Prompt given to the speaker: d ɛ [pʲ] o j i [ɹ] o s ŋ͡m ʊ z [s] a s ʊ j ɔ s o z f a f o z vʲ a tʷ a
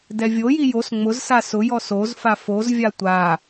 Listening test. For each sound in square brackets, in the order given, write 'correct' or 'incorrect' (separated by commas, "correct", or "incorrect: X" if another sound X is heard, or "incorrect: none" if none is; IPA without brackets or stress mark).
incorrect: vʲ, incorrect: j, correct